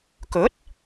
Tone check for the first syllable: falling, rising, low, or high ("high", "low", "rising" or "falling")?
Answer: rising